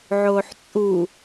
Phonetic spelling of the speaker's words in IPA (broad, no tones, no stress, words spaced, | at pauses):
ʕoːħt͡sʼu